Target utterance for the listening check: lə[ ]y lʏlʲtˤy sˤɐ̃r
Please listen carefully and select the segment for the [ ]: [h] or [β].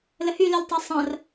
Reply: h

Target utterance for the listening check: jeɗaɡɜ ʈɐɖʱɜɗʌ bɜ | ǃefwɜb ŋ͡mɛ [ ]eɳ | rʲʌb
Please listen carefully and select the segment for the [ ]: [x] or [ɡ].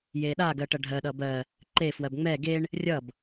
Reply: ɡ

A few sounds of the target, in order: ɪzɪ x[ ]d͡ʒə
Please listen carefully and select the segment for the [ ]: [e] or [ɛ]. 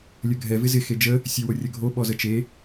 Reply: e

